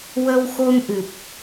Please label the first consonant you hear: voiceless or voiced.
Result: voiced